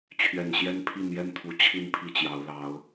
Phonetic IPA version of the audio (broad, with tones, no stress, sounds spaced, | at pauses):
t͡ɕʰ ɥ ɛ˨˩ n ɕ j ɛ˦ n pʰ i˥˨ n j ɛ˥˨ n t̪ʰ u˨˦ t͡ɕʰ i˥˨ n pʰ i˥˨ t͡ɕ j ɑ˨˦ ʊ̯ l ɑ˨˦ ʊ̯